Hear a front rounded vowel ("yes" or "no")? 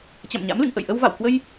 no